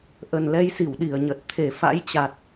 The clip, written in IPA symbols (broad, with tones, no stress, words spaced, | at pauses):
ʔə˨˩nlɛ˧jsi˧˩w ɗi˧˩ə̯ɲə˨˩t̚ t̪ʰe˧˩fa̰˧˥jt͡ɕa˨˩t̚